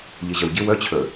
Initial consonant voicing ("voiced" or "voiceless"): voiced